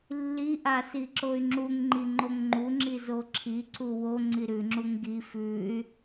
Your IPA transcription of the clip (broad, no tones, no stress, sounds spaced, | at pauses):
lː i ʔ a s i ǁ o y̯ ŋ͡ǁ u ŋ ŋ͡ǃ i ŋ͡ǃ o ŋ ŋ͡ǃ u ŋ͡ǁ i z o ǁʰ i ǀ u w o ŋ͡ǀ i ɾ ʉ ŋ͡ǁ u ŋ ɡ i f ʉ y̯